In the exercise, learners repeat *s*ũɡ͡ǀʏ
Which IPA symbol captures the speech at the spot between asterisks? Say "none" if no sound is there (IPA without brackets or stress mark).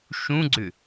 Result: ʃ